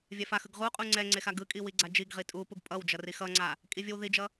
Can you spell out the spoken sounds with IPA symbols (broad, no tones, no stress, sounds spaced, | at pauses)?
vʲ ɛ f a x ɯ ɡ ʁ u qʼ u ŋ͡ǀ ɛ ŋ͡ǀ e x a ɡ ɯ kʼ i w i ɡ͡ǀ a d͡ʒ i ɡ ʁ i tʼ u p u ɡ pʼ ʌ w d͡ʒ ʌ r i x ʌ ŋ͡ǀ a | kʼ i vʲ ɯ w ð i d͡ʒ ʌ